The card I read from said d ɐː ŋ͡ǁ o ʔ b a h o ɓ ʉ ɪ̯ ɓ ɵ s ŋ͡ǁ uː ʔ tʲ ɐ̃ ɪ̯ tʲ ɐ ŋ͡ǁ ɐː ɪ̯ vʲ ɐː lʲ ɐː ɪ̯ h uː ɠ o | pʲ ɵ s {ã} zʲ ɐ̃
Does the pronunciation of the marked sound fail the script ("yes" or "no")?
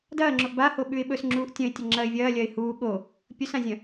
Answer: no